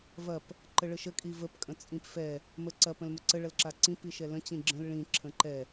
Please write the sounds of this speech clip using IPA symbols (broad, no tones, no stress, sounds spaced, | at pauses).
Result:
v ɐ p | ǃ ə ɭ ə ʃ ə kʼ i v ə p kʼ ə̃ t͡sʼ ĩ p f ɛ | m ə ǀ ɐ p ə̃ l m ə ǀ ə ɭ ɐ l ǁ a ǀ ĩ p i ʃ ɛ l ə̃ t͡ɕ ĩ ɡ͡ǁ ə̃ l ɭ ĩ ǁʰ ə̃ ǃ ɛ